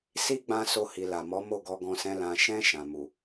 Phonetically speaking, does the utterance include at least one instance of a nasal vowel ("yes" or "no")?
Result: yes